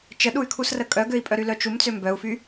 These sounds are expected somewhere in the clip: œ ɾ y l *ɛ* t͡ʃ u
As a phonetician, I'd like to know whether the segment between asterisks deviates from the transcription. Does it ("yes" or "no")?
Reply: yes